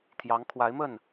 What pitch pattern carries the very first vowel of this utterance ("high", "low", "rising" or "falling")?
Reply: rising